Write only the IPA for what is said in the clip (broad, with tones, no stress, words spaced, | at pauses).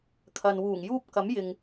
kʰɐ˨nwuː˨˩ŋjuː˥p̚ kɐ˨˥mjɪ˨ŋ